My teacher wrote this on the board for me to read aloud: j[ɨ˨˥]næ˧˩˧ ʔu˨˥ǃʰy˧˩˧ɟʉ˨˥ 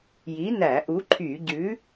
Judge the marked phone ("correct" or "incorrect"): incorrect